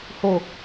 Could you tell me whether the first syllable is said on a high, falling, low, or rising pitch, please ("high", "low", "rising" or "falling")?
low